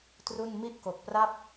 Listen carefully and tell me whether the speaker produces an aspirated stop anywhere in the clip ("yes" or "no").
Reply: no